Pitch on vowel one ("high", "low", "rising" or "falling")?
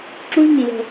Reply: high